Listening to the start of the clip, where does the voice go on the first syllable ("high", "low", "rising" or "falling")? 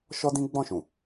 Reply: high